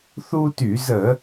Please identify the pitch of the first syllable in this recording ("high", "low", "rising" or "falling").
high